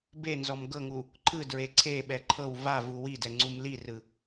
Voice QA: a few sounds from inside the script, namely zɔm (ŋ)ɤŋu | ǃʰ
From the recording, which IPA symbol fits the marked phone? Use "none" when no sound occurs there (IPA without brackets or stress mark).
ɡ